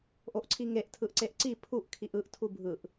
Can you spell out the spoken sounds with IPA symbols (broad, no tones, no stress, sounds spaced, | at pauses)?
ʔ o ʔ ǀʰ i ŋ e ʔ tʰ ɯ ʔ ǀ e ʔ ǀ i pʰ u ʔ kʰ i ʔ ɯ ʔ tʰ u bʱ ɯ ʔ